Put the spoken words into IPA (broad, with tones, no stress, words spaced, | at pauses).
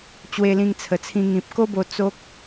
t͡ɕwe˧lĩ˧ŋt͡sʰə˨˩t͡sʰĩ˧ ŋĩ˨p̚ ko˦bo˧ t͡so˦k̚